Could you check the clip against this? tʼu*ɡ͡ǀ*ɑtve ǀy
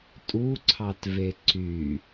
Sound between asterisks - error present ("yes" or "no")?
yes